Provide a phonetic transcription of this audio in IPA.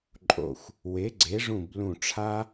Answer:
ǃʼo̰˧˩xʷ | we˩˥ɡ͡ǀe˩˥ʐũ˧˩b lũ˧˩ʈ͡ʂʰa˥

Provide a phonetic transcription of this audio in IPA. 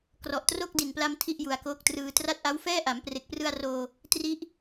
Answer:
krɔ˨˩ʔtro˥˩k̚di˨˩npla˧m tʰi˥˩ʔju˩˦a̯koː˦˥k̚trɯː˧ tra˦˥t̚ʔa˦˥wfɛː˥˩ ʔa˩˦mpre˨˩k̚prɯ˧a̯roː˧ | tri˦˥ʔ

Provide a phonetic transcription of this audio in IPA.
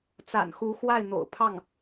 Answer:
t͡sa̰˨˩n xu˧˥ xwa˥˩ɪ̯n̪o̰˨˩ʊ̯ pʰɑ˥˩ŋ

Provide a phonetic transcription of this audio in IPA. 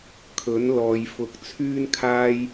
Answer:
kʰɵ˨˥n lɔː˨jfʊ˨˥k̚ t͡sʰyː˥nkʰaː˥j

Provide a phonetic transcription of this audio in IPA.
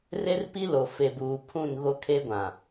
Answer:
re˦rpi˦lo˨ fe˨buː˨ pʰũ˦˨n ɣo˦kʰe˦ɡʷã˨

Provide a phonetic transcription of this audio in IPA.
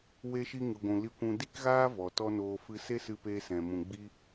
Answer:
we˦ʃi˦ ŋɨ˧ɡʷũ˧ li˦kʷũ˦ di˦kɣaː˦ vɔ˨tɔ˦noː˧ fɨ˧se˦ sɨ˦peː˦sɛ̃˨mũ˨ ɡ͡bi˦

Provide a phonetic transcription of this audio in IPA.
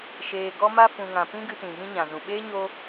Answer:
ʃeː˧ ɡɔ˦ma˦fũ˧ŋã˧ pĩ˦ɡɨ˧tĩ˨ ɣĩ˧ɲã˨zũ˨ ɓeː˦ ɲo˦

